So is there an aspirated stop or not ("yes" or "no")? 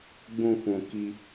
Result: no